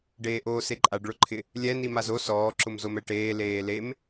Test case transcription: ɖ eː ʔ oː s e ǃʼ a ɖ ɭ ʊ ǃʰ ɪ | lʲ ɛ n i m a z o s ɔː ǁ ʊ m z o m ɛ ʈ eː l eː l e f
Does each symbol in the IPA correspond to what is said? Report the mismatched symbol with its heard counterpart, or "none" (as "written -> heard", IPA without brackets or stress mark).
f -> m